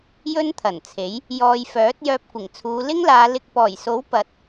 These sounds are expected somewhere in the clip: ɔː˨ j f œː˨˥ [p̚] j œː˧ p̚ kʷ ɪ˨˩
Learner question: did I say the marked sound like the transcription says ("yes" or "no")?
no